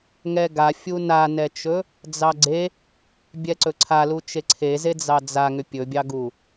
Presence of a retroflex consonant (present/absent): absent